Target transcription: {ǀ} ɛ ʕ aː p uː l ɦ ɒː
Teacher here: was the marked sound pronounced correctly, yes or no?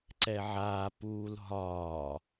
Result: yes